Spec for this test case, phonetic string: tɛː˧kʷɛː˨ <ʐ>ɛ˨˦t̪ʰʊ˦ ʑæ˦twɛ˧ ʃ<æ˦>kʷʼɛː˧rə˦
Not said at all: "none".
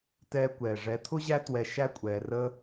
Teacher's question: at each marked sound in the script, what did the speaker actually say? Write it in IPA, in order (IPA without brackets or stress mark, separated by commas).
ʐ, æ˦